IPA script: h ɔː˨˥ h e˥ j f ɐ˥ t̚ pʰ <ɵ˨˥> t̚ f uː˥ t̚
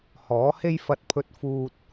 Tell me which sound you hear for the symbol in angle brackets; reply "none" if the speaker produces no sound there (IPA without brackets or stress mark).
ɵ˥